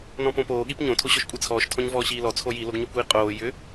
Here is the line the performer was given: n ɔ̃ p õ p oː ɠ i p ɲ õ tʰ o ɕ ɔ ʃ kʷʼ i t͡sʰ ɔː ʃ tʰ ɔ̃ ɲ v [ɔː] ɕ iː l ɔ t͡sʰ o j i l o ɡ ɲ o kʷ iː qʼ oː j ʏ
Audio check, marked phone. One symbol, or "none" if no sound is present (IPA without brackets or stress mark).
ɔː